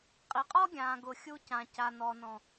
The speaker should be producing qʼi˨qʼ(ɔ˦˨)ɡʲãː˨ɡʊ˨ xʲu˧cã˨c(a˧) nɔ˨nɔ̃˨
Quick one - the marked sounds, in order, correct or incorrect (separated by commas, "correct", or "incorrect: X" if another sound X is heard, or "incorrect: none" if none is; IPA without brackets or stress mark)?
incorrect: ɔ˦, incorrect: a˨